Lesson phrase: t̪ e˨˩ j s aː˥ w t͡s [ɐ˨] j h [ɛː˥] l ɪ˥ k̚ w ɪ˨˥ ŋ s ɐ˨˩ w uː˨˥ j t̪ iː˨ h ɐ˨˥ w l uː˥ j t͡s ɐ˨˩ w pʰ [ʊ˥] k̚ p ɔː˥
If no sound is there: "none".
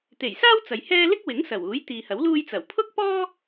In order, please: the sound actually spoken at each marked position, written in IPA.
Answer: ɐ˨, ɛː˥, ʊ˥

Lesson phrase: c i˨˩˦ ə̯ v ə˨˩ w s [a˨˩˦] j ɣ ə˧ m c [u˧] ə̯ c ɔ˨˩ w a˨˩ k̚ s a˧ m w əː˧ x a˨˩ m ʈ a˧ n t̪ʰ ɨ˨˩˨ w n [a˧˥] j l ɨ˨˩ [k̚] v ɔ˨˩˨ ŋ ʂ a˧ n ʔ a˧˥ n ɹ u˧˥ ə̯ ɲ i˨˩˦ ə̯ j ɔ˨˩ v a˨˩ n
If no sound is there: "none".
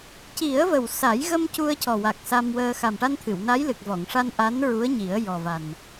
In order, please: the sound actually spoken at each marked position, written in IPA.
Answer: a˨˩˦, u˧, a˧˥, k̚

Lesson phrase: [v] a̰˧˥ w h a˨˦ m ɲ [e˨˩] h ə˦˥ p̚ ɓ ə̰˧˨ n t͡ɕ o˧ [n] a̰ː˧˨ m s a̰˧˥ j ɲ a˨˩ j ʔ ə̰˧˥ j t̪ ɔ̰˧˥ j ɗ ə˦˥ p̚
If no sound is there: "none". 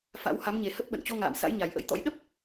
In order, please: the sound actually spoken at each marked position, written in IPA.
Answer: f, e˨˩, ŋ

